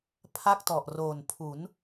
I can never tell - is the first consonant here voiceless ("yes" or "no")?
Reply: yes